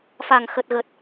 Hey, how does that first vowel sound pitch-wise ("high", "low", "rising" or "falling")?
low